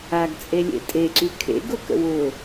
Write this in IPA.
a ɡ t͡sʼ e lʲ ḛ tʼ e ǀ y kʰ ḛ ɡ ʊ k ə̰ w ʊ

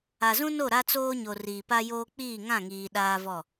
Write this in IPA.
a˨ z ũ˦ n o˦˨ ɾ a˦ t͡s oː˦ ɲ o˨ r iː˨ p a˦ j oː˦ k͡p iː˦˨ ŋ ã˦˨ ŋ iː˨ ɗ aː˦ v ɔ˦˨

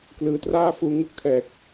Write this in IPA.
k l ɯː˩˦ t r aː˥˩ f uː˧ ŋ u˦˥ k̚ tʰ ɛː˨˩ k̚

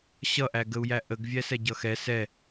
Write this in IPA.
ɕ ʌ ʔ æ ɡ ə u̯ j æ ʔ ə ɡ vʲ æ s ɛ ɟ ʌ x ɛ s ɛ

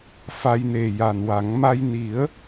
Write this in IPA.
f a˧ j n e˨˩ j a˨˩ n w a˨˩˦ ŋ m a˧ j n i˨˩˦ ə̯

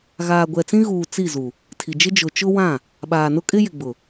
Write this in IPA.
ɣ aː˨ ɡʷ ɛ˨ t͡s ĩ˦ ɣ uː˨ t͡s i˦˨ z u˨ | tʰ i˨ d͡ʒ ɪ˦ d͡ʒ ʊ˨ t͡ʃ ʊ˦ w ã˦˨ | ɓ aː˨ n ʊ˦ kʼ ɪ˦ j ɪ˨ ɡ͡b ʊ˨

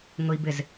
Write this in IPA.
ŋ ʊ i̯ b ɪ z

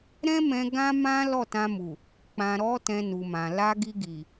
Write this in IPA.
ɾ ɛ̃˦ m ɛ̃˧ ɡ ã˦ m ã˦ l ɔ˦˨ t ã˧ m u˨ | k͡p ã˨ ɾ ɔ˨˦ t ɛ̃˧ n u˨ m ã˨ l a˧ ɡ i˧ ɡ i˨

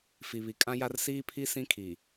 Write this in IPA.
f i˨ β i˨ kʼ ã˦ j a˦ r s iː˦ pʰ i˦ s ĩ˦ kʰ i˨

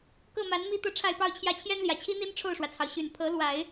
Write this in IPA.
k ɤ˥˩ m a˧˥ n m i˥ t̪ ɤ˥˧ ʈ͡ʂʰ a˥˧ ɪ̯ p ɑ˥˧ ʊ̯ t͡ɕʰ j ä˥˩ t͡ɕʰ j ɛ˥ n l j ä˨˩ t͡ɕʰ i˥ n̪ i˥ n ʈ͡ʂʰ o˥˩ ʊ̯ ʂ w ä˩ t͡sʰ ɑ˩ ʊ̯ ɕ y˨˩ n pʰ ɤ˧˥ l w a˨˩˦ ɪ̯

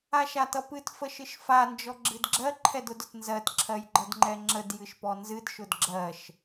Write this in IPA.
a ʃ a t ʌ p ɨ t f ə ʃ ɨ ʃ f a n d͡ʒ ɔ ɡ͡ǁ ɨ d ɡ͡ǁ ɜ ǃʰ ɛ d ʊ d ʊ t n z ɜ t ǁʰ ɜ j ɡ͡ǃ ʌ d ŋ͡ǃ ɛ ŋ͡ǁ ə d j ɨ ʃ p ɔ n z ɨ d ʃ ʊ d ɡ͡ǁ ɜ ʃ

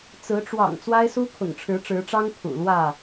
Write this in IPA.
t͡s ɹ̩˨˦ ʈ͡ʂ w ɑ̰˨˩ ŋ t͡s w a˦ ɪ̯ s u˦ kʰ ʊ̰˨˩ ŋ ʈ͡ʂʰ ɻ̩˨˦ ʈ͡ʂ ɻ̩˨˦ ʈ͡ʂ ɑ˦ ŋ kʰ ṵ˨˩ l w ä˥˨

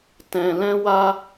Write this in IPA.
t ɛ̃˧ l ɛ̃˦ w a˦

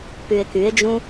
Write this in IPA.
p y e̯ k y e̯ d͡ʒ ũ

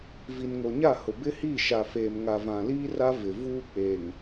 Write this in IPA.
v i˨ n ŋ o˨ ɲ a˦˨ h ʊ˨ b ɪ˦ h i˦˨ ʃ a˨ f eː˨ m ŋ a˨ v ã˨ l iː˦ r a˦ v ɪ˨ v uː˦ k͡p eː˨ ŋ

